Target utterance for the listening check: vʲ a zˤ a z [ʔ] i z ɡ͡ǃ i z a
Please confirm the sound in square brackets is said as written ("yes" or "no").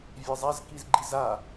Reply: no